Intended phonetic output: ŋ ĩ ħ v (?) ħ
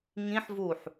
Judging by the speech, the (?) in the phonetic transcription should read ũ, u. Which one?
u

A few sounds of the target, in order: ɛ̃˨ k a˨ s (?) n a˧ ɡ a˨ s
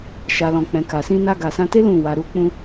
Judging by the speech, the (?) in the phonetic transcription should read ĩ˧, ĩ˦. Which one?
ĩ˧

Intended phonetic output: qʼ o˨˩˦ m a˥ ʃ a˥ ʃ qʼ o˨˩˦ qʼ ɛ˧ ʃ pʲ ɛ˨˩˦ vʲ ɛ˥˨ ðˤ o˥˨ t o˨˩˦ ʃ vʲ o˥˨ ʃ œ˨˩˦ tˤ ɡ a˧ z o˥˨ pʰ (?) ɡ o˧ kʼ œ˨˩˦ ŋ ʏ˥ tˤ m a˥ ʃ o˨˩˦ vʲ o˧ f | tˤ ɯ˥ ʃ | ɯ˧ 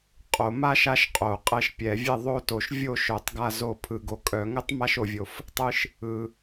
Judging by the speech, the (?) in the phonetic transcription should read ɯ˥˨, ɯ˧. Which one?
ɯ˧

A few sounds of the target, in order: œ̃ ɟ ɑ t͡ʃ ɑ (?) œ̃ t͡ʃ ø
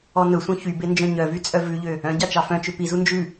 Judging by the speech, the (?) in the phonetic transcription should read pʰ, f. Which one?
f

